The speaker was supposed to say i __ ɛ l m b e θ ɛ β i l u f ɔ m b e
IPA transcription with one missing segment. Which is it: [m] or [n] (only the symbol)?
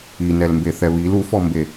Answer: n